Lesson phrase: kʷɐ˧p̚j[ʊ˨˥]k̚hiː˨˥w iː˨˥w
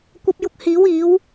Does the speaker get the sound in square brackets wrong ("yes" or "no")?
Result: yes